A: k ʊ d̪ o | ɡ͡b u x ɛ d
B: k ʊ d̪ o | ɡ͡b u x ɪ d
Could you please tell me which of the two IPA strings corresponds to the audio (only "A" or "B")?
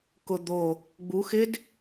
B